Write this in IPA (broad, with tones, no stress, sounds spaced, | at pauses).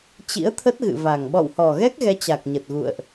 t͡ɕ ḭ˧˥ ə̯ t̪ʰ ə˦˥ t̚ ɣ ɨ̰˧˨ v a˨˩ ŋ ɓ ɔ̰˧˨ w h ɔ˨˩ ɣ ɛ˦˥ k̚ ɣ ɛ˨˦ t͡ɕ a˨˩ k̚ ɲ ə˨˩ t̚ ɣ ṵ˧˨ ə̯ ʔ